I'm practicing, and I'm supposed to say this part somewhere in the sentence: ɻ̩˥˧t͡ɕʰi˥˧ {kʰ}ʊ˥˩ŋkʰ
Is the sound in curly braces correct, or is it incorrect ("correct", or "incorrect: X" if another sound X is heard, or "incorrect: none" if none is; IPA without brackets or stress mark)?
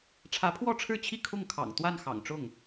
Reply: correct